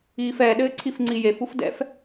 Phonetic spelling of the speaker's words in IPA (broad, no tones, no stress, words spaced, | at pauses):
iːfɛ ɗɘːǀʰifŋ͡ǀijef ufdɛ̰f